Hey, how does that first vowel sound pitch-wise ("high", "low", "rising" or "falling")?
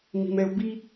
low